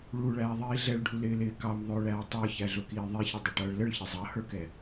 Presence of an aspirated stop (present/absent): absent